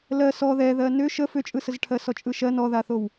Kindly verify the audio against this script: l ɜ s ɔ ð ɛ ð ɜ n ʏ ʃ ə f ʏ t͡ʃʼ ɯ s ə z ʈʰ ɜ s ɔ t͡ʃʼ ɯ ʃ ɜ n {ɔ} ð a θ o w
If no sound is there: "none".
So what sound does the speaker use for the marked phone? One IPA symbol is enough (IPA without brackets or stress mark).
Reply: ɔ